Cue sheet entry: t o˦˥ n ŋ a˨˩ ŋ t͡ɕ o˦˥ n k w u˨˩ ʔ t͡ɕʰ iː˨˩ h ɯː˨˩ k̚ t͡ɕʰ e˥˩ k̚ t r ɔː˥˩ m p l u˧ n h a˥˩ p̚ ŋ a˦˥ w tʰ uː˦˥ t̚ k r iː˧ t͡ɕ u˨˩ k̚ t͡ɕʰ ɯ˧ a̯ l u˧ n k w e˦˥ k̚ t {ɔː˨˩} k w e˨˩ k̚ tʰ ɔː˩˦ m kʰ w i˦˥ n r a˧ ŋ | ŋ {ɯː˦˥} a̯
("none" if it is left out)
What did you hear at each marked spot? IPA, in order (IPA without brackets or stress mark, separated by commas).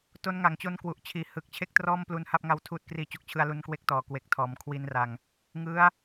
ɔː˨˩, ɯ˦˥